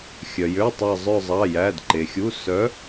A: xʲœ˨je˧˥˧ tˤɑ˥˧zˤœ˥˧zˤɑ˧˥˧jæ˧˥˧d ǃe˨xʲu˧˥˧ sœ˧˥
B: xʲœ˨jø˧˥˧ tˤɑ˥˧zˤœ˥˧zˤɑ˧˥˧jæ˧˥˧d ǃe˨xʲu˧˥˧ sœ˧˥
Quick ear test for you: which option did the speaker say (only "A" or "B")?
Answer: B